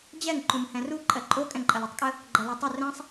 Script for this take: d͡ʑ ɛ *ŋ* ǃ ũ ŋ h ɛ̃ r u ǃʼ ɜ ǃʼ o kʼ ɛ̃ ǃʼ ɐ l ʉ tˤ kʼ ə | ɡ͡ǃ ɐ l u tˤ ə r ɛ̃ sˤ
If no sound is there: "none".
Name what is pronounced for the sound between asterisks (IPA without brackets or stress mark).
ŋ